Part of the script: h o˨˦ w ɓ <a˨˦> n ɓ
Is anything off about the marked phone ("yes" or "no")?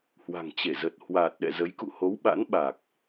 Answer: yes